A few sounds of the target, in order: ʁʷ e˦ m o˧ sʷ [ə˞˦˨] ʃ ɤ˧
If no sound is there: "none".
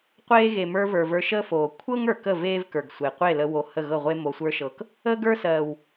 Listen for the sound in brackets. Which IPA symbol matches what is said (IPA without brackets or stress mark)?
ə˞˦